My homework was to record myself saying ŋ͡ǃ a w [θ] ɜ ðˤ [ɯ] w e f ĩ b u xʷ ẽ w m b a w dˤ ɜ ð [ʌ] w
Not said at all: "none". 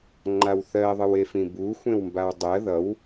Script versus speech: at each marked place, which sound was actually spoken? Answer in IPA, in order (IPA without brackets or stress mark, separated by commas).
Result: θ, ɯ, ʌ